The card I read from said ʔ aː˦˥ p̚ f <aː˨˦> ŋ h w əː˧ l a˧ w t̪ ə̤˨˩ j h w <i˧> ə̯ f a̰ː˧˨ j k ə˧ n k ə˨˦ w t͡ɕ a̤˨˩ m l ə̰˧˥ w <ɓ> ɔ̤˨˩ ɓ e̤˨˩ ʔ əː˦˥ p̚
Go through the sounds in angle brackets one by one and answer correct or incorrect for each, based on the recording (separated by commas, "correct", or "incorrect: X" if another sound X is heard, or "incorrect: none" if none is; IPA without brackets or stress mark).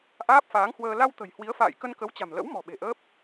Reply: correct, incorrect: i˨˦, incorrect: m